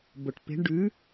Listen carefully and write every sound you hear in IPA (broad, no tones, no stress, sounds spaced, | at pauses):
b o ʈ p e̤ ɳ ɖ ʉ